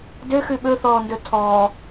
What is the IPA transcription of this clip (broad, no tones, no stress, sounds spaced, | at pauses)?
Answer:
d ø x ʉ ɓ ɵ θ ɔː n d ɵ tʰ ɔː